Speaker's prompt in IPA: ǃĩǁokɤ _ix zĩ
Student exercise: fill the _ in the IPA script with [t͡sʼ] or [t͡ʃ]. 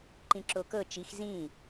t͡ʃ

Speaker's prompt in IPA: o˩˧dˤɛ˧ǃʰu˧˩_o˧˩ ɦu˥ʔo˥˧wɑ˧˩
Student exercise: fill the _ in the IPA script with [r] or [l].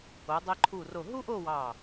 r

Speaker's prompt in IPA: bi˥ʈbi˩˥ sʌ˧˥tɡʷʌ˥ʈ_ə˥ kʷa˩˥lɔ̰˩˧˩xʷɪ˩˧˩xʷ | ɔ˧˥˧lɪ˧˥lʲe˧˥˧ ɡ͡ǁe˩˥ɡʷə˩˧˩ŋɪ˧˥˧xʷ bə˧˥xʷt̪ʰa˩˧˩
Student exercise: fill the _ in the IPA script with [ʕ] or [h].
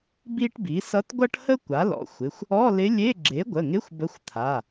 h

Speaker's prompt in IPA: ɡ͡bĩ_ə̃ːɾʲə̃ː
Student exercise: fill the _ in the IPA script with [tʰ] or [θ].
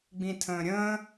tʰ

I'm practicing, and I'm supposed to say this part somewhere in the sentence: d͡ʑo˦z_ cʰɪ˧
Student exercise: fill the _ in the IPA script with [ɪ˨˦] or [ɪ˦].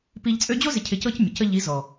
ɪ˨˦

